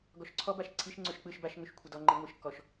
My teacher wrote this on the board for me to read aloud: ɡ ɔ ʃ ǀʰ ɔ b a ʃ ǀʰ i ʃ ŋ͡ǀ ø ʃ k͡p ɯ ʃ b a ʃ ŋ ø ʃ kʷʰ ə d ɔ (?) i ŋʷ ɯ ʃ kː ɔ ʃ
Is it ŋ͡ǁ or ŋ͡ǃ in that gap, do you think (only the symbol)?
ŋ͡ǃ